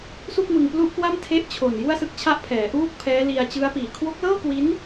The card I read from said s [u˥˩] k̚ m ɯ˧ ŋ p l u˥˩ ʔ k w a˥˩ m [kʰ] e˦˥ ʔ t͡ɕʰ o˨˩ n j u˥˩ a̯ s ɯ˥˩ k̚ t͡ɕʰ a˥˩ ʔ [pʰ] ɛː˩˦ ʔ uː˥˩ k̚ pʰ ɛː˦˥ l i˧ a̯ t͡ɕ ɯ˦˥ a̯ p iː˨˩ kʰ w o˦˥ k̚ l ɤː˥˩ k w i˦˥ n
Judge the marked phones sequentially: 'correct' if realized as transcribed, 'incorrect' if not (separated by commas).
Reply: correct, incorrect, correct